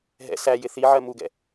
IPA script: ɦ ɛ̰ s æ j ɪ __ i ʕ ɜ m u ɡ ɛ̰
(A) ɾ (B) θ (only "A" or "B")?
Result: B